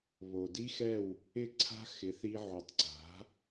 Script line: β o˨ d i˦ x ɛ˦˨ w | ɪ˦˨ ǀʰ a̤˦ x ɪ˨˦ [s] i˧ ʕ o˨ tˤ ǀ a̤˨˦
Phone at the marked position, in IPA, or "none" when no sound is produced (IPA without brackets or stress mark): θ